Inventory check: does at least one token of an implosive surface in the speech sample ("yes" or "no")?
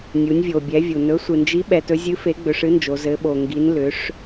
yes